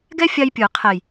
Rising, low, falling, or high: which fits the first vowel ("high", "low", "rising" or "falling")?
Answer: high